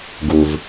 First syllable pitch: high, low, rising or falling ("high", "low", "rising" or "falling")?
low